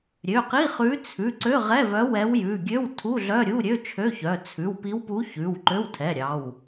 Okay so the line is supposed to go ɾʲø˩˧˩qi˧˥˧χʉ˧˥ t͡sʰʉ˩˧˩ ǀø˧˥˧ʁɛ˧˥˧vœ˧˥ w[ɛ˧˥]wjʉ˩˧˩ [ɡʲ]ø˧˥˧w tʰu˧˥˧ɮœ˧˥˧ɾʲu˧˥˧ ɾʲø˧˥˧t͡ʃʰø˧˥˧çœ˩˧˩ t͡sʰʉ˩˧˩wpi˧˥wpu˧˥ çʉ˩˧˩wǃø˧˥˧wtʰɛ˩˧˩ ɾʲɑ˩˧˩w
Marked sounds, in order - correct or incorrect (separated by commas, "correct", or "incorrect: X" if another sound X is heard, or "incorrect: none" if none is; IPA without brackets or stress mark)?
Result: correct, correct